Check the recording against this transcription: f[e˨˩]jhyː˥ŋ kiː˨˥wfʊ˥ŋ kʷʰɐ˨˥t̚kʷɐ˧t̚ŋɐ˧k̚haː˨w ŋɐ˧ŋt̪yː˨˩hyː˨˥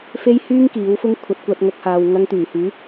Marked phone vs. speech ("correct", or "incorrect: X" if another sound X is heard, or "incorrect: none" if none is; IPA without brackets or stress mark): incorrect: e˥